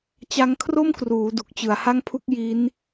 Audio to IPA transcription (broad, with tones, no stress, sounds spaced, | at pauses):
t͡ɕ a˦˥ ŋ kʰ r o˥˩ m k r uː˩˦ d u˨˩ k̚ t͡ɕ ɯ˩˦ a̯ h a˥˩ ŋ pʰ u˥˩ k̚ j i˦˥ n